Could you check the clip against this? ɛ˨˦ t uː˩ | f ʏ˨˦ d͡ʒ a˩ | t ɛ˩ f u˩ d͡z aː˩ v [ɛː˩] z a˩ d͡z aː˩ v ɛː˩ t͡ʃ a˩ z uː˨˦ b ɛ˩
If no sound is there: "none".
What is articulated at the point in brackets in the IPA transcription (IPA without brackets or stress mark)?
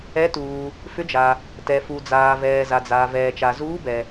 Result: ɛː˩